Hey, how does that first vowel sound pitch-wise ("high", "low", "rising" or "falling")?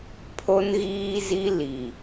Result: high